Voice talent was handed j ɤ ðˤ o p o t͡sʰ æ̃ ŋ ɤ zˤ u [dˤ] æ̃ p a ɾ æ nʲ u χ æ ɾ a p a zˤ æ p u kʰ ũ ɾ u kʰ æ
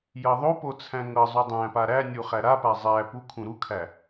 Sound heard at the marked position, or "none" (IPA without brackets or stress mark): dˤ